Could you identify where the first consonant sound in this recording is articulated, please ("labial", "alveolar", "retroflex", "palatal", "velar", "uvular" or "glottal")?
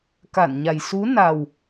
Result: velar